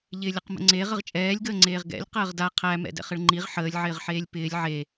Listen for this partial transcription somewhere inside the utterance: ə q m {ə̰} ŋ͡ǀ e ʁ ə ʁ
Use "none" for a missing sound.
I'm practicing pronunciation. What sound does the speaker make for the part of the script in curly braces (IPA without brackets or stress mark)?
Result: ə̰